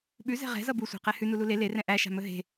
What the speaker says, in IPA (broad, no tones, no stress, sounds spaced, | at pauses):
ɓ ʉ z ɛ̤ ʁ ɛ̤ z ʌ b u sʷ ɛ̤ q ɛ h ʉ n u l u l e l e r ɛ̃ ʔ æ ʃ a̤ m ɵ ɦ e̤